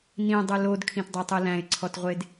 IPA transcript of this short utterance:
n ĩ dˤ ɯ l o d kʰ ĩ t dˤ æ tˤ ɯ l æ̃ ɪ̯ ǀʰ ɔ t ʁʷ e d

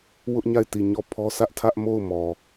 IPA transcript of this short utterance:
w ʊ˦ ʔ ɲ a˦˨ ɪ̯ t i˦˨ ɲ ɔ˦˨ pʰ ɔ˦ s ä˦ ʔ tʰ ä˦ ʔ m o˦˨ ʊ̯ m ɔ˨

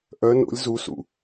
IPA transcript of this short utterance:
ʔ œ n o̰ lʲ z u s ṵ

